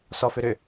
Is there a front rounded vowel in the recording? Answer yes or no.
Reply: yes